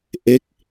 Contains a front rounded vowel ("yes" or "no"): no